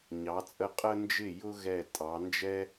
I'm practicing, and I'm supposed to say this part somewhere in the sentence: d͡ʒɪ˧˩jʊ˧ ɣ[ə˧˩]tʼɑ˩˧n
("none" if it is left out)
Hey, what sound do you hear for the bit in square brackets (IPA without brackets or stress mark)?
ɛ˧˩